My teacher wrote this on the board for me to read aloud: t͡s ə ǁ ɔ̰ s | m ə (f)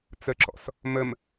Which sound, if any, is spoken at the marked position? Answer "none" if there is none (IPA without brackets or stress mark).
m